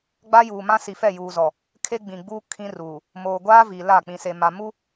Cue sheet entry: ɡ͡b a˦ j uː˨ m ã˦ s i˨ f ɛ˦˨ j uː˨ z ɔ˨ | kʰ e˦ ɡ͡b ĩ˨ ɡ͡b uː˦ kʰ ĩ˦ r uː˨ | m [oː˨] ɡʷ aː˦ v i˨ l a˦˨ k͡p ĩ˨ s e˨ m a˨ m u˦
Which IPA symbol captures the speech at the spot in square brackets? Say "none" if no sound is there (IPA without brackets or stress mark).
oː˨